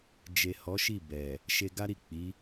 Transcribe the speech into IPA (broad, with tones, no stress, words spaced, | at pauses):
d͡ʒe˨ hɔ˨˦ʃi˦˨bɛ˨ | ʃe˧ɡa˦ɾi˦˨ k͡pi˨˦